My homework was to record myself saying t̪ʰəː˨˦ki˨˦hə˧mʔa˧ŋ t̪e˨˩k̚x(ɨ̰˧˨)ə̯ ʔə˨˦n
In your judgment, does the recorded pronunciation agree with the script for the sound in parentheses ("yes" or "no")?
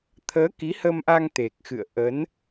yes